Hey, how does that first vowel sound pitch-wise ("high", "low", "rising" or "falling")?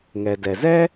low